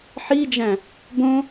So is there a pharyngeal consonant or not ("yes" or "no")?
yes